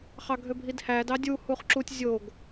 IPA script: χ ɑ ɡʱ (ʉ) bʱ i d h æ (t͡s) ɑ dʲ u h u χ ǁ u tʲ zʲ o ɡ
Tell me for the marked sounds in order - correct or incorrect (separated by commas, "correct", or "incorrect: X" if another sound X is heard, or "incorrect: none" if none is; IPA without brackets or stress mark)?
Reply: incorrect: ø, incorrect: d